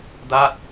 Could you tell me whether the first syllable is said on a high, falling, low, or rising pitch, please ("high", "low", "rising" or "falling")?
falling